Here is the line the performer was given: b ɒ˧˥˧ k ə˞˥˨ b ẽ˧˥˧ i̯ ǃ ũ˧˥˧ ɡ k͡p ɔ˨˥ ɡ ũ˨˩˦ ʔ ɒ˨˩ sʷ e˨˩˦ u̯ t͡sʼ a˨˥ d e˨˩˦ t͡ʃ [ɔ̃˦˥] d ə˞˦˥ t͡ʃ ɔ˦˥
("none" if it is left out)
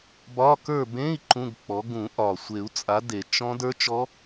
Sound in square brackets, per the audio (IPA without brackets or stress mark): ɔ̃˦˥